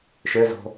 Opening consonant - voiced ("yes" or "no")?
no